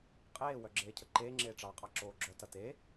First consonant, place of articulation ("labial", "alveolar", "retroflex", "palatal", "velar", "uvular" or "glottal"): uvular